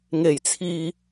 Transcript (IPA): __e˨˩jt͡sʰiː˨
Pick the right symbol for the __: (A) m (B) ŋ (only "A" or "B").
B